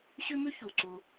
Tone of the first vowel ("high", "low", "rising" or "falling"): high